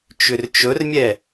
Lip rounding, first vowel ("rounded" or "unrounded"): rounded